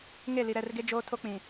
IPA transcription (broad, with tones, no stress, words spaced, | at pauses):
ŋe˦˨li˨ ɾɛ˦˨rɡe˦d͡ʒoː˦ tʰo˦k͡pĩ˨